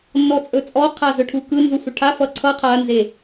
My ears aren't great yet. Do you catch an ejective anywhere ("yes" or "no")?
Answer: yes